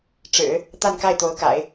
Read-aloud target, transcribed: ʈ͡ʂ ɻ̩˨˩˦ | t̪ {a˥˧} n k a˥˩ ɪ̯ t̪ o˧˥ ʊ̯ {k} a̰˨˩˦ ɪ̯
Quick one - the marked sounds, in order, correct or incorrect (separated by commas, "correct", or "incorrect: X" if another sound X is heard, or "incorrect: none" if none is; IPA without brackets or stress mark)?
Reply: correct, correct